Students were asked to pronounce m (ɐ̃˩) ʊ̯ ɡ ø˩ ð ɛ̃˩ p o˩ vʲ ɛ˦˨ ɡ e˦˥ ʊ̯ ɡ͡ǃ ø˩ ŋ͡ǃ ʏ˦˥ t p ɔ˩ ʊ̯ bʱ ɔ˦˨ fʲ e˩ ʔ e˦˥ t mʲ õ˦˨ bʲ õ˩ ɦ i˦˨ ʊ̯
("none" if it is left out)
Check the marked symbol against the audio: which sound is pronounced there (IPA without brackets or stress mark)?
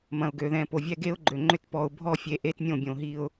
ɐ̃˩